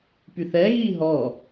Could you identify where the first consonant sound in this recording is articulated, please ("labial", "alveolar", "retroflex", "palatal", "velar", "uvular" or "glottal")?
labial